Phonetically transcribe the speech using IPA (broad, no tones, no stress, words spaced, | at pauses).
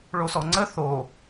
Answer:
ɭosɔŋ͡ǀə θo